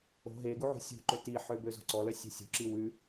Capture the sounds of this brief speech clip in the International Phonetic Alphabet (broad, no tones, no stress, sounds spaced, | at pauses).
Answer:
o̤ ɦ e ɡ u ʕ ṳ sʲ ṳ ǃ ø t i ħ ø b ø z o̤ ǀ ɔ l œ sʲ ɛ̤ sʲ ṳ ǁ i w ʉ